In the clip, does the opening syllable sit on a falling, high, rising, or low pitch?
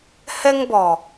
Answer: high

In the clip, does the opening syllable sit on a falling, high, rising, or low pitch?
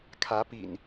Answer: rising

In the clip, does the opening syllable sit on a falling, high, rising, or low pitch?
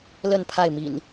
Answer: falling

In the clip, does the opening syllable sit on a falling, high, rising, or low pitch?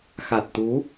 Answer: low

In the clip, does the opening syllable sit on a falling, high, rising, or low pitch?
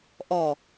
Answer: low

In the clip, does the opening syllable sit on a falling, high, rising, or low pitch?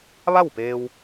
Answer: falling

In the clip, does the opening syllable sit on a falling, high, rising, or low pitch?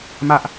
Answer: high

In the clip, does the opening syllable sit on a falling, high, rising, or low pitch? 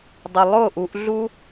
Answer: low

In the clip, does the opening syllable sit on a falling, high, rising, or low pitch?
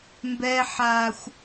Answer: high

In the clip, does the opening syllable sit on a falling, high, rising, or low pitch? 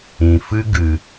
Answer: low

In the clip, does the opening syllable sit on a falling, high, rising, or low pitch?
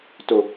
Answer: low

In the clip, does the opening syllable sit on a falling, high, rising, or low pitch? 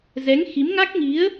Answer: rising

